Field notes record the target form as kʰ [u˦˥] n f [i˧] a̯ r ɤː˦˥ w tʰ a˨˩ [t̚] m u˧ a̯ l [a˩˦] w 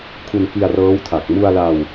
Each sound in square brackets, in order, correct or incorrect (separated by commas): incorrect, correct, incorrect, incorrect